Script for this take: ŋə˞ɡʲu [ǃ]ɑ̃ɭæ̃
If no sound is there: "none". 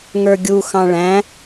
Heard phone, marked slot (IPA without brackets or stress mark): x